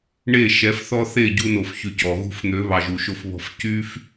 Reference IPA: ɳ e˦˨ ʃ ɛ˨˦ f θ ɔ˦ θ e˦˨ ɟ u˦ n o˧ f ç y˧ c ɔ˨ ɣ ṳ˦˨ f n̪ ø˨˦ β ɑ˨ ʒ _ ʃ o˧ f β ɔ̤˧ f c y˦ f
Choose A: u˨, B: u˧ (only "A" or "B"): A